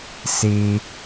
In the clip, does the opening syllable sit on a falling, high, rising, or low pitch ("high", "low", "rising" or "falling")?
high